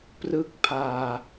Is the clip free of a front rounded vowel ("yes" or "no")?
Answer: yes